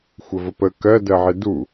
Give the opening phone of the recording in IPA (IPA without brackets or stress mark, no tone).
xʷ